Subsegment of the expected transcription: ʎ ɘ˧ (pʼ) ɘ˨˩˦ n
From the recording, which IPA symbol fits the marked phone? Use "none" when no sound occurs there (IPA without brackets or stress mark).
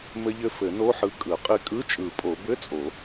f